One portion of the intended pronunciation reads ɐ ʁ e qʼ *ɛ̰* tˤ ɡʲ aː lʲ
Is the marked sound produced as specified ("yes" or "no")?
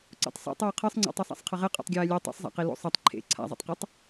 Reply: no